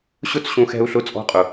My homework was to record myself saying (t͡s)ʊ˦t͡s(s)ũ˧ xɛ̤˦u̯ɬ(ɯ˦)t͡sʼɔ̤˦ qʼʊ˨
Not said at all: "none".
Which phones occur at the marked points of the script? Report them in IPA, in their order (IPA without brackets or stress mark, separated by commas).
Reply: ɕ, ɕ, ʊ˦